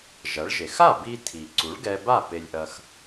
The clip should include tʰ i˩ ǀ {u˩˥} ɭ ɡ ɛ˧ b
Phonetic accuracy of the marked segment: correct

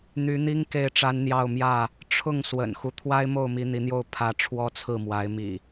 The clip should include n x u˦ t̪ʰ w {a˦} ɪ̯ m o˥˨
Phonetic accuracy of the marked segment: correct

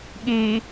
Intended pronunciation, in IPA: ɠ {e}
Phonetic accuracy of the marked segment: correct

